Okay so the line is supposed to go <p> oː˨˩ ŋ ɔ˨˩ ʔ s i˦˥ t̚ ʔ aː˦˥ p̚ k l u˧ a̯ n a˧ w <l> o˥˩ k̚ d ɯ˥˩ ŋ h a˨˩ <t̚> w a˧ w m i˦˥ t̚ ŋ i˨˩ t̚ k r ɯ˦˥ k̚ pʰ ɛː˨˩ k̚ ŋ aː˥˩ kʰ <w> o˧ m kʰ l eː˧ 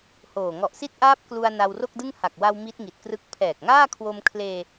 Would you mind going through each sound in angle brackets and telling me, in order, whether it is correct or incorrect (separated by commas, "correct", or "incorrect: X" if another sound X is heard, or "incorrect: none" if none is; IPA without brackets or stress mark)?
incorrect: h, incorrect: r, incorrect: k̚, correct